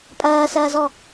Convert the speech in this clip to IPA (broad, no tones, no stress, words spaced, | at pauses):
pʼɐːsɐːzɔ